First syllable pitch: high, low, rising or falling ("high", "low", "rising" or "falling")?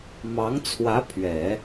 rising